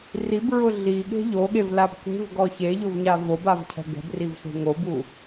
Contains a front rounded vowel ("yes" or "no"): no